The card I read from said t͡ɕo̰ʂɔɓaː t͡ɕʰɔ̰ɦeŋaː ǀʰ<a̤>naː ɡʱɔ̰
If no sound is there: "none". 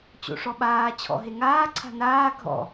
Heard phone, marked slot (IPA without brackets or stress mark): a̤